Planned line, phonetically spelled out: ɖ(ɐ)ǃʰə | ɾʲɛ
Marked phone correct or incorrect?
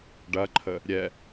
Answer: correct